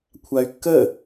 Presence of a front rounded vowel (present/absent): present